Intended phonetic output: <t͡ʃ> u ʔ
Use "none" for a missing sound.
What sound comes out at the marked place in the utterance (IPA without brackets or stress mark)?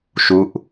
ʃ